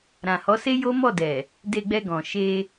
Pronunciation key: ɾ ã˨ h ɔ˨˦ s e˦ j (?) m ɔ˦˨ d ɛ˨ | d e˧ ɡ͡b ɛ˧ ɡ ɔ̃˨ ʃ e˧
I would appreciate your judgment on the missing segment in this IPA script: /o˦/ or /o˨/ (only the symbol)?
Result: o˦